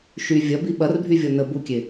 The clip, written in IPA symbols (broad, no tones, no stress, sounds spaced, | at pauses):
ʃ y vʲ ɐ b i ɓ ɐ r bʱ y vʲ ɔ n ə b u kʲ e